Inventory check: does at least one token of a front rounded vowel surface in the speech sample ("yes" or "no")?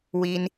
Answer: no